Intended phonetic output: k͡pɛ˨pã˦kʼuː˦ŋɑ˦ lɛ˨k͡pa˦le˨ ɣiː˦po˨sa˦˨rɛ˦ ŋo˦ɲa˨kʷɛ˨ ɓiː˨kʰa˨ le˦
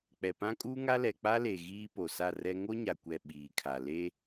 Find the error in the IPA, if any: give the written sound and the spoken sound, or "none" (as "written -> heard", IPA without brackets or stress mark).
ɑ˦ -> a˦